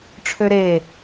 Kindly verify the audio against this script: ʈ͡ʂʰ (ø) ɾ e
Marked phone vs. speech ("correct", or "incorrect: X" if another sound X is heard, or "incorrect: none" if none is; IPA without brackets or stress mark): correct